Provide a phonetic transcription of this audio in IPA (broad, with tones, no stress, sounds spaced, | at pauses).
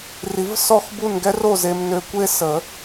r i˨˩˦ v s ɔ˦˨ x b u˦˨ n ɡ ɛ˦ r o˦˨ z e˨ m n ø˨ kʷ e˦ s ə˨˩˦